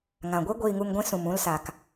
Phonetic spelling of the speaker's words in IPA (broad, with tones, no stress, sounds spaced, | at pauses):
ŋ ã˨ ɡʷ e˦ ɡʷ iː˧ ŋ u˧ ŋ ɡʷ ĩ˦ s ũ˨ m ũ˧ l s a˨ k